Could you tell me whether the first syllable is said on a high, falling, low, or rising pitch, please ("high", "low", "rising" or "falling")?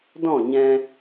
falling